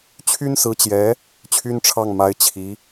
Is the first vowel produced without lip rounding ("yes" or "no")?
no